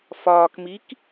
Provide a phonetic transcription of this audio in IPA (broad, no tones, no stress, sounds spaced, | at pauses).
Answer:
f ɒː k m i k